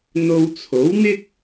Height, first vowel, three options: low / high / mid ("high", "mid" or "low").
mid